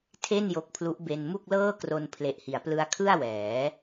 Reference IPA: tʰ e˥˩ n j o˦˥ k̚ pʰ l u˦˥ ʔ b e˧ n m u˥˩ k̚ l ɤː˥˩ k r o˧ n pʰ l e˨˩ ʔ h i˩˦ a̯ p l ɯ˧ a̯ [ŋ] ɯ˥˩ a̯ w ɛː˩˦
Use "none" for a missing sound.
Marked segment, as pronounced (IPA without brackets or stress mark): kʰ